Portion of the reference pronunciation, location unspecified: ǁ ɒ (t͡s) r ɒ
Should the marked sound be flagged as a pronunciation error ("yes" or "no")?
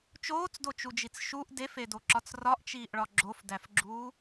no